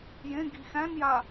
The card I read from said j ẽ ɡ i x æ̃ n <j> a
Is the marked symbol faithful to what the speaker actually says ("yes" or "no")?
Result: yes